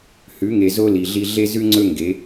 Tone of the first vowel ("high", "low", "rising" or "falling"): rising